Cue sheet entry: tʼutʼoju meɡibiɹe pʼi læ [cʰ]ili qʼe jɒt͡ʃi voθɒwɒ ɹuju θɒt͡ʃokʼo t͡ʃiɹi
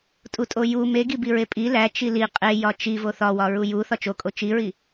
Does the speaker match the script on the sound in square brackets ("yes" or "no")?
no